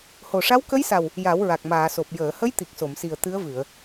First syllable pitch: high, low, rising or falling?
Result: low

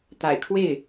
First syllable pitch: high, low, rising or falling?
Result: low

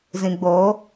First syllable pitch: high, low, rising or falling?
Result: low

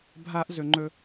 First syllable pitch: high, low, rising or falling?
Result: high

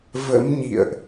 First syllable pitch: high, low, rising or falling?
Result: rising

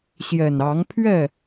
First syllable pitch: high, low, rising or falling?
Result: low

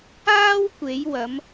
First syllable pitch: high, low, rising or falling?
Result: high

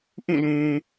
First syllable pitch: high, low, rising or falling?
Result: falling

